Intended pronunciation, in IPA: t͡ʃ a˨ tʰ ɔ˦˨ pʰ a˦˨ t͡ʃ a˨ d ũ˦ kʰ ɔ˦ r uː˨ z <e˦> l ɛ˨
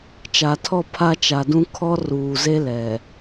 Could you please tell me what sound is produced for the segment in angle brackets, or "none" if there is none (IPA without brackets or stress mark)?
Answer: e˦